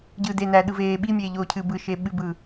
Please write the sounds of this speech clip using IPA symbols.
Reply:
ɟ ɯ d e n æ ɗ ɯ v eː ɓ i mʲ eː ʎ oː cʰ ɨ b ɯ ʃ e ɓ ɨ b ɯː

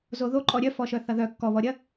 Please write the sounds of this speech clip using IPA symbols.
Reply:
z o ð o ǃʼ ɔ ɾʲ œ f ɔ ʃ œ θ ɐ ð œ kː ɔ β ɔ ɾʲ ɐ

